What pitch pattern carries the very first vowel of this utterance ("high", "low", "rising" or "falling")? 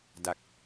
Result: low